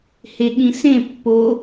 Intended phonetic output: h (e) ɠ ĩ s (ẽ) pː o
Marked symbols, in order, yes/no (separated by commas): yes, yes